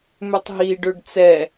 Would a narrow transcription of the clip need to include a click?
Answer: no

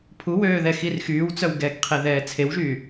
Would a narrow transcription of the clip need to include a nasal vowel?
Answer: no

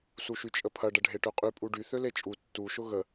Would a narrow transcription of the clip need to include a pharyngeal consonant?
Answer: no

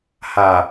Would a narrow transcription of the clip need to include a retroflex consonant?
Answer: no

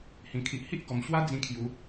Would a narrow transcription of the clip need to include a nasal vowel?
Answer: yes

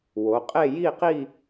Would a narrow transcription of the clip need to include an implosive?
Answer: no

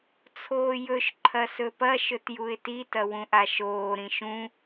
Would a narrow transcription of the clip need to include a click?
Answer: yes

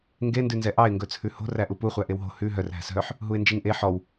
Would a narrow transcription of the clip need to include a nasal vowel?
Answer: no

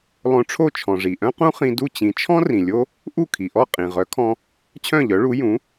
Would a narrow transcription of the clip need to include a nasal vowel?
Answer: yes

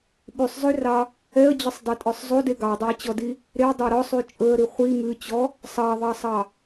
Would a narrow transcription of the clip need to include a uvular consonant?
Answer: yes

